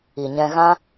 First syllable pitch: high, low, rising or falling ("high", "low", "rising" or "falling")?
low